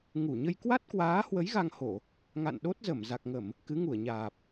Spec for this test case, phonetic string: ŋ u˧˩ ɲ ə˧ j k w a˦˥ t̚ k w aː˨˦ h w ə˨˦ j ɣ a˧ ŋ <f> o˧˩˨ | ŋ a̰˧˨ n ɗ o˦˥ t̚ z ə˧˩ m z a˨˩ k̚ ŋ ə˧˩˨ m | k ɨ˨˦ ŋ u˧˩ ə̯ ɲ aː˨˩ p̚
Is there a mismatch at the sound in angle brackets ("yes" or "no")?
yes